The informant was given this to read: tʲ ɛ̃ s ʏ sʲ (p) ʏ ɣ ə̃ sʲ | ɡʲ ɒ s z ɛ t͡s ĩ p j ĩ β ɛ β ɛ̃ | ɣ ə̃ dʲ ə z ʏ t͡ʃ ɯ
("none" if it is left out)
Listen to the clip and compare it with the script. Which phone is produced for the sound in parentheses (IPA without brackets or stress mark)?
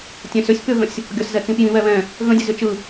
p